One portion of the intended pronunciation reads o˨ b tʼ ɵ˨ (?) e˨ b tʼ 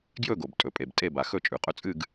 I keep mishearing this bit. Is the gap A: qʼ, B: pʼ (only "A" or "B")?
B